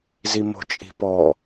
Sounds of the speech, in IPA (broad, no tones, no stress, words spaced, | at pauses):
zimo̤t͡ʃʼi̤pɔ